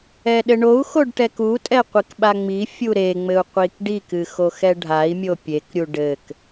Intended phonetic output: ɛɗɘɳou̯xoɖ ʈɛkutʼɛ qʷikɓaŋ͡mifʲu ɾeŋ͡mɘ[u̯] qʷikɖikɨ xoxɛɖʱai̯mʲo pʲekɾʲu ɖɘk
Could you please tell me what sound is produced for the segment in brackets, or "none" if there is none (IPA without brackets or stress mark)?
u̯